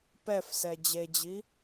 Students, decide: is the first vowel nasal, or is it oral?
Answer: oral